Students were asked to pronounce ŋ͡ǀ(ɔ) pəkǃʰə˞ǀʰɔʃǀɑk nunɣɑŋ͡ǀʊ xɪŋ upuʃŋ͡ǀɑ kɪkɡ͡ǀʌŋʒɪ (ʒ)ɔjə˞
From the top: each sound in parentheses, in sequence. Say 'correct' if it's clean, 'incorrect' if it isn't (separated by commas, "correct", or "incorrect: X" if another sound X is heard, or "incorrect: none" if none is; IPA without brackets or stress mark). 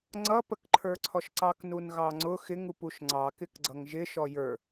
incorrect: ʌ, incorrect: ʃ